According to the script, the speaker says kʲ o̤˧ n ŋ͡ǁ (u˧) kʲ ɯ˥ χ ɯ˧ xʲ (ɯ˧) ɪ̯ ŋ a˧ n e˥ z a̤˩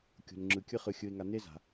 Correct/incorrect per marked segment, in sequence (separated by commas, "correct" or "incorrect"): incorrect, correct